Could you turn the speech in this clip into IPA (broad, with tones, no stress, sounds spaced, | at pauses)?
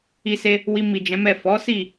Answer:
i˧ s e˧ | w i˧ m i˨ d͡ʒ ɛ̃˨˦ m ɛ˦˨ f ɔ˨˦ s i˦˨